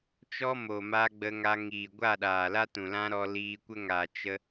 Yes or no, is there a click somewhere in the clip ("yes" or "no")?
no